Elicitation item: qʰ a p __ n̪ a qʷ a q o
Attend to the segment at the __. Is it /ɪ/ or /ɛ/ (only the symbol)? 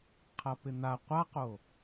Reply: ɪ